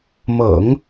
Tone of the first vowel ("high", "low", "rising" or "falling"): low